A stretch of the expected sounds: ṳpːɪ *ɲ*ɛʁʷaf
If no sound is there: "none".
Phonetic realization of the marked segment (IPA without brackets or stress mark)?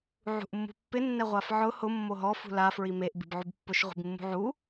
nː